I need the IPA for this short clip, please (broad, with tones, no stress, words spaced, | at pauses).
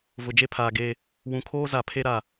vʊ˨d͡ʒe˦pʰaː˨ ɡe˨ | wũ˨kʰoː˦ za˨pʰe˦ɾa˨